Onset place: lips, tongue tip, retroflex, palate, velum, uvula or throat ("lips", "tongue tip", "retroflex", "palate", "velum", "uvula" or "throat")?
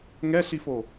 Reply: velum